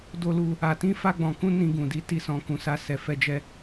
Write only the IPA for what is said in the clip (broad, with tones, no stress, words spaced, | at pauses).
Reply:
do˧lu˧ | a˨tĩ˧ fa˦ɡ͡bɔ̃˧ kũ˦ nĩ˧ɡũ˨di˨˦ ti˧sɔ̃˧ kũ˧sa˦sɛ˧ fɛ˦d͡ʒɛ˦